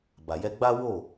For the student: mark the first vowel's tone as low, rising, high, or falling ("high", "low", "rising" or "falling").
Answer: low